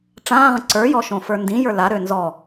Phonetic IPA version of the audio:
ʈ͡ʂãːʁə̃ ǀə˞jɔʃõfə˞ ndĩjə˞ laɾø nzɔ

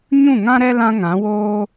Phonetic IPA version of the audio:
ɲũ˦˨ŋã˦ɾɛ˦ lã˦ŋã˨˦woː˦

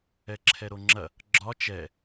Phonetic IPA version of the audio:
ɛǁʰɛɾoŋ͡ǁɐ | ɡ͡ǁɒ t͡ʃɛ

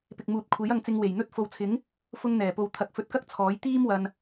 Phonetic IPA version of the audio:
pɪ˨k̚muː˨t̚kʷʰe˨˥j ɐ˧ŋt͡sɪ˧ŋ we˨˩jn̪ɵ˥t̚ fo˨wt͡sʰɪ˨˥ŋ | fʊ˥ŋn̪ɛː˨˩po˧w t̪ʰɐ˨˥k̚fɵ˨˥t̚kɐ˥k̚ t͡sʰɔː˨˥j t̪iː˥m wɐ˧n

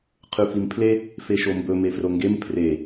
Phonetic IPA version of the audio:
qʰʉfimpʰle | feʃombɵ mefroŋɡem pʰre

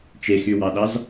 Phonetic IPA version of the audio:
t͡ʃexywɑɗɑz

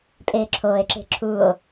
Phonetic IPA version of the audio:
pʼeːǁʰoːe̯ǁe̤ ǁʰuo̯

